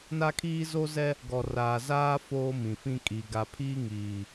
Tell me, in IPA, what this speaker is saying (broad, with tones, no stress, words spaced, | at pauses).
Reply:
na˦kʰiː˦zo˦zɛ˦ | ɡɔ˨raː˨zaː˦ foː˦mĩ˨fĩ˦ kʼi˨ ɡa˨pʰiː˦ ŋiː˨